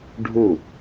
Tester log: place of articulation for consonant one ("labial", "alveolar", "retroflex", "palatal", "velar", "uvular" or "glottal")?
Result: retroflex